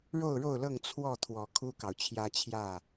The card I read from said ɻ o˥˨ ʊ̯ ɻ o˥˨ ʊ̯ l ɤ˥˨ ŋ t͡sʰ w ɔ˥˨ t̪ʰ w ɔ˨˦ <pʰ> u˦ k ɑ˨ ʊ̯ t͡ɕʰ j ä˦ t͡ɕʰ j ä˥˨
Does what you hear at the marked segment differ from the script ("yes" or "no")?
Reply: yes